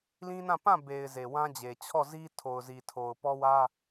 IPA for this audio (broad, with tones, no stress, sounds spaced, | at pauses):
l ĩ˦ n ã˦˨ p ã˦˨ b e˨ ɪ̯ z e˨ w ã˦ d͡ʑ e˨ t͡ɕʰ ɔ˦˨ z i˦ tʰ o˨ ʊ̯ z i˨ tʰ o˨ ʊ̯ p ɔ˦ w ä˦